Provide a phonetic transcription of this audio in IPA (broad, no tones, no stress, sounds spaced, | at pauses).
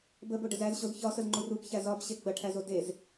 b ə b o ɖ ə z æ z ɕ o z ç ɒ s ə z ŋ͡ǃ u r u b ç æ z ɒ b ɕ e ɡ͡b ɐ ʈʰ æ z o d e z